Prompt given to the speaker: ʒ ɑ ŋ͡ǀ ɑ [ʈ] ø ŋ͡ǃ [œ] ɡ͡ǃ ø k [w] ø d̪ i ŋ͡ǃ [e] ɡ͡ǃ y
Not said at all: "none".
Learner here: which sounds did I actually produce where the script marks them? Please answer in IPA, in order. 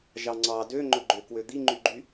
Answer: d, ɵ, w, y

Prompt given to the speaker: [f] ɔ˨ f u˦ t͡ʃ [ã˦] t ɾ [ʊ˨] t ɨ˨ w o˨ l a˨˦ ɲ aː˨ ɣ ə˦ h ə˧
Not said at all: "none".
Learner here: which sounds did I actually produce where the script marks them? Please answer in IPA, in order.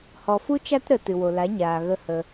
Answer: h, a˦, ə˨

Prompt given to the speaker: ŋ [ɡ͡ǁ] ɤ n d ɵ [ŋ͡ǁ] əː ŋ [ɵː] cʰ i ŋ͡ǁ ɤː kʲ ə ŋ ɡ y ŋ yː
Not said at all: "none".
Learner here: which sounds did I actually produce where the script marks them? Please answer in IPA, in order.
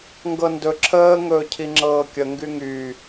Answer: ɡ, ǁʰ, ɵː

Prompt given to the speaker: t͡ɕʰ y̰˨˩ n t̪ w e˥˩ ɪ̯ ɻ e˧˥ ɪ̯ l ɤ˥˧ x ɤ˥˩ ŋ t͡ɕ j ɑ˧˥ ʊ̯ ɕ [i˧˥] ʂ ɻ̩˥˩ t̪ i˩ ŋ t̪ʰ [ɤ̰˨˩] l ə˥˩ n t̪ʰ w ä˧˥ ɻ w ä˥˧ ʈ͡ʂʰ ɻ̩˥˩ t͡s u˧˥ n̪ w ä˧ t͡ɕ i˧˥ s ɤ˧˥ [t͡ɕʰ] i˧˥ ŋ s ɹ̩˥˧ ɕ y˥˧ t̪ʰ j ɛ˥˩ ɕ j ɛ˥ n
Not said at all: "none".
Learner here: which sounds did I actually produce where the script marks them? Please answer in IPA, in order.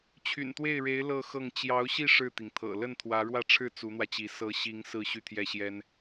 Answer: i˥˧, ɤ̰˨˩, ɕ

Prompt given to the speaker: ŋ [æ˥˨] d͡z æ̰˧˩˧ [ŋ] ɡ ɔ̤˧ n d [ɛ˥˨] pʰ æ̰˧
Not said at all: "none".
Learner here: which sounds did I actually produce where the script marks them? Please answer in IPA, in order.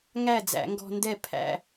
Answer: æ˥˨, ŋ, ɛ˥˨

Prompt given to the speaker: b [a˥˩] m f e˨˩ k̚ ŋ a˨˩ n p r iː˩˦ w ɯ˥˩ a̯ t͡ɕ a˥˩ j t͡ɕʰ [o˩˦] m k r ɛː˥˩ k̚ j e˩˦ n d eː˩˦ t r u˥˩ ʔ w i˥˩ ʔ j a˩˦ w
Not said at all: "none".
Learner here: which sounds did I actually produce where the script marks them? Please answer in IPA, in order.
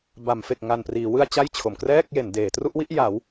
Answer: a˩˦, o˩˦

